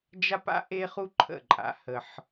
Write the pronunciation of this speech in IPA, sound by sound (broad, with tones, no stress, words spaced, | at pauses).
d͡ʒa˥pa̰˥ ʔe˥χu˥ ǃʰə̰˥˩ǃʼa̰˩˥ hə˩ħ